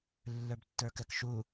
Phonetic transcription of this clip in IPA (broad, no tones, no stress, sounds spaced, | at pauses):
lː ə˞ b tː ə˞ k ɛ k ʃ u